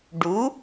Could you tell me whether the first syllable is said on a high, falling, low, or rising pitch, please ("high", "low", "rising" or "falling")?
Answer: rising